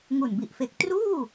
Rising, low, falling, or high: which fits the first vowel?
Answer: low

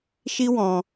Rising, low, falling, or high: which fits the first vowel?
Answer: high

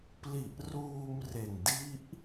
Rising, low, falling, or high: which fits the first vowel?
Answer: low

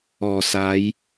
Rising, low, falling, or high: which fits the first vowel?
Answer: low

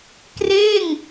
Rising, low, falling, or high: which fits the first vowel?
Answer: falling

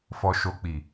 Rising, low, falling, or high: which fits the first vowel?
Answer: low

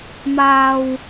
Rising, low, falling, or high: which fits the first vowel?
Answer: low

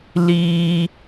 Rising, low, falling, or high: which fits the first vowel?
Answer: high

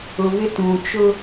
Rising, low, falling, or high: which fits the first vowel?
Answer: low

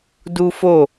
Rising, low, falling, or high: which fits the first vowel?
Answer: high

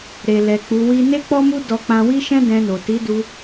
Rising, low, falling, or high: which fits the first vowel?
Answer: low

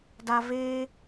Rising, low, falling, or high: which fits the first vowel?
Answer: high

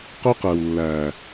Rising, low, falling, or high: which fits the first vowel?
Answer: high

